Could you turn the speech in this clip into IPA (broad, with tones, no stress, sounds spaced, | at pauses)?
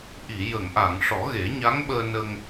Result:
ʔ i˨˩˨ j ə˨˩˨ ŋ ʔ a˨˩˨ ŋ ʂ ɔ˨˩˦ ɣ e˨˩˦ ɲ a˧˥ ŋ ɓ əː˧ n ə˧ ŋ